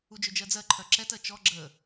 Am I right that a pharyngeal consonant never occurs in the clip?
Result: yes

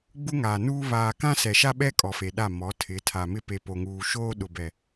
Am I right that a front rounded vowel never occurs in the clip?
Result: yes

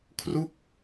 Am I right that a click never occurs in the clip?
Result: yes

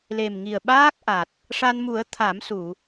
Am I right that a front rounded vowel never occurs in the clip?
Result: yes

